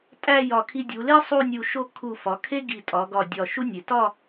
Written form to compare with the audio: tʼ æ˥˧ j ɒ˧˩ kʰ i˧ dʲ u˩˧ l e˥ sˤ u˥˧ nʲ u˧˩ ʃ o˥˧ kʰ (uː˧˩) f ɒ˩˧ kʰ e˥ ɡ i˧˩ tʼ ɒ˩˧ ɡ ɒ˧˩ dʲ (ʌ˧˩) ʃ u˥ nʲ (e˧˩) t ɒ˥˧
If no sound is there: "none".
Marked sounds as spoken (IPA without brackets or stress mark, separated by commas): u˧˩, ɒ˧˩, e˩˧